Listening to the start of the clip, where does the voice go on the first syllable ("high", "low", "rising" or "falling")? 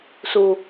low